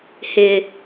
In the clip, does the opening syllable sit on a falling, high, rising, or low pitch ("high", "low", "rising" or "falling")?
high